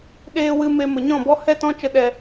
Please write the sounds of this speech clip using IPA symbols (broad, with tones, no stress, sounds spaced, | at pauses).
ɗ eː˧ w ɨ˧ m e˧ m ə˨ ɲ ɔ̃˦˨ b ɔ˦ h ɛ˦ t ɔ̃˦ t͡ʃ ə˦ ɗ ɛ˧